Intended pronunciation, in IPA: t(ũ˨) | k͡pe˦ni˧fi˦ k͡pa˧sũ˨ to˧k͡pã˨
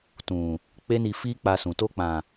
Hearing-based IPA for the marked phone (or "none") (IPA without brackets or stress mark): ũ˨